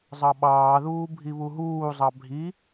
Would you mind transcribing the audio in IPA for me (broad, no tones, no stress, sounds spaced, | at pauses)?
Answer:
zˤ ɑ ɓ ɑː ð uː bʱ i β u ɦ uː zˤ ɑ bʱ i